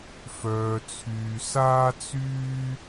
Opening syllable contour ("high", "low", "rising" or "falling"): low